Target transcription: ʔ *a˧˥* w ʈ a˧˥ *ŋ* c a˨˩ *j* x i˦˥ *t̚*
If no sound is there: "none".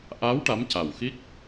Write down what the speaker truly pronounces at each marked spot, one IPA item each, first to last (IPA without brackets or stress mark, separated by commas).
a˧˥, m, w, k̚